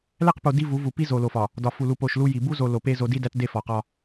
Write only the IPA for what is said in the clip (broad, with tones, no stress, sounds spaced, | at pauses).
l æ˦˨ q p o˨ d i˦ v u˨˦ v u˨ p i˦ z o˨ l o˨ f ɒ˨ | d ɒ˨ f u˨ l u˨ p o˨ ʃ l u˦ j i˨ b u˦ z o˨ l o˨ p e˦ z o˦ d i˦ d æ˦ t d e˦ f ɒ˨ q ɒ˦